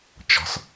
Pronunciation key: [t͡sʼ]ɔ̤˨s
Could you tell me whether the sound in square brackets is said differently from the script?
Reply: yes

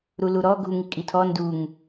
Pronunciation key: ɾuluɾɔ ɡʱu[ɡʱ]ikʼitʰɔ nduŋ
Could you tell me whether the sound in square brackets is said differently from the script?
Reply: yes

